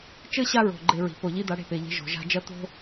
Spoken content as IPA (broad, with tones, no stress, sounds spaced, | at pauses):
t͡ʃ ɘ˥ ɕ a˥ ɹ o̤˩ ɡ͡ǃ e˧ ɹ i̤˩ p o˩ ʎ i˧ d̪ a˧ ɽ e̤˧ p e˩ ʎ e̤˧ ʒ o̤˩ ʒ a̤˧ d͡ʒ ɐ˥ t̪ o̤˥